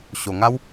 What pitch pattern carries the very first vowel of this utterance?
low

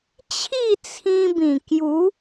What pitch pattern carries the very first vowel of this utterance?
falling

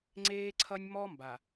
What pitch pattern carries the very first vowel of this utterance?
high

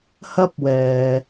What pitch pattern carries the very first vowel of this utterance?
high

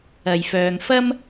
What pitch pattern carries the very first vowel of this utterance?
low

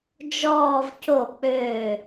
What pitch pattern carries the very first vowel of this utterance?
falling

